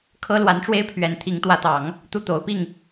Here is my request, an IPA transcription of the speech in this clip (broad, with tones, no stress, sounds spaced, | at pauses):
kʰ ɤ˥ l w a˧˥ n ʈ͡ʂ w e˥ ɪ̯ pʰ ɥ ɛ˧˥ n t̪ʰ i˧˥ ŋ t̪ w ä˧˥ t̪ ɑ˨˩˦ ŋ | t̪ u˥˩ t̪ o˧˥ ʊ̯ p i˥˩ ŋ